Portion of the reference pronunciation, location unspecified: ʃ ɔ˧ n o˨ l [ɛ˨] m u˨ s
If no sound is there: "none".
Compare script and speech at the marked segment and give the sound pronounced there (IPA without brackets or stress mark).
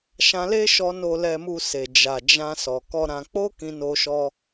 ɛ˨